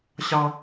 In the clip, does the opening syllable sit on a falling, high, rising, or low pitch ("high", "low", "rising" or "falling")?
high